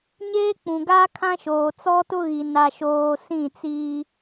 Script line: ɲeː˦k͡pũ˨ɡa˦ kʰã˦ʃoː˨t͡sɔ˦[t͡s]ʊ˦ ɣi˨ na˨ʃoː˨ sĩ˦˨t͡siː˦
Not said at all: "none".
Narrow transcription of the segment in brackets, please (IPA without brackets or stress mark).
t